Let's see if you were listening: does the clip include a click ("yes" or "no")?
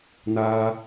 no